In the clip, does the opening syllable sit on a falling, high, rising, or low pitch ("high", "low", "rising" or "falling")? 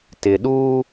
low